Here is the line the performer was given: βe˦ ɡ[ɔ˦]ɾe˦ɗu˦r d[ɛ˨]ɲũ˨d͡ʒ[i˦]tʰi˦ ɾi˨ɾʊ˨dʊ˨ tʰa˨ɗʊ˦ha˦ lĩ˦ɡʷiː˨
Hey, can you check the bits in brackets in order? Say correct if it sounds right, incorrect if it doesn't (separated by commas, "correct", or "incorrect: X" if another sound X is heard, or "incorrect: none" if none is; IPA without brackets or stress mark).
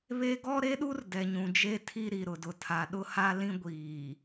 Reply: correct, correct, incorrect: e˦